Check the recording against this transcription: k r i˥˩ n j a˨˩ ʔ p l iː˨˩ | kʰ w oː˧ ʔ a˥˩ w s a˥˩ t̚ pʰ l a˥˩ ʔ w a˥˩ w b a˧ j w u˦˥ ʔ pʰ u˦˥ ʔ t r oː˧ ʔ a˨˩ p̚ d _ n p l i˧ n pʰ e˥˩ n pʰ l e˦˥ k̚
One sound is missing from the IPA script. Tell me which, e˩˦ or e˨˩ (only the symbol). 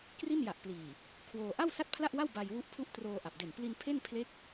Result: e˨˩